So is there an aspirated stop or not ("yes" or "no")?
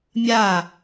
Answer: no